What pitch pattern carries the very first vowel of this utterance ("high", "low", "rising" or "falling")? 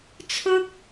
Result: high